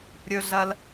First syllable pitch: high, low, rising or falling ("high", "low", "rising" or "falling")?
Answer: high